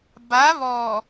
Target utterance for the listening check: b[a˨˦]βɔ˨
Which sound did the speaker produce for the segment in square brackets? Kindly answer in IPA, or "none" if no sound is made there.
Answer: a˨˦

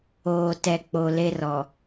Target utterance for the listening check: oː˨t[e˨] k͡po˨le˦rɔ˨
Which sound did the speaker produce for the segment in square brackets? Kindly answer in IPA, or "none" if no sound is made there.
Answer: ɛ˨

